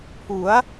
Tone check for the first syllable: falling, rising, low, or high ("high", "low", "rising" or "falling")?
rising